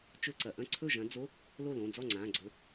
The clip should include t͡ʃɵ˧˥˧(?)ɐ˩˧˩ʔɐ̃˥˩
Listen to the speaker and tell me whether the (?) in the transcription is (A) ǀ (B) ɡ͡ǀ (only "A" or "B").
A